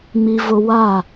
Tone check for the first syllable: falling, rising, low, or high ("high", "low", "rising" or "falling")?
high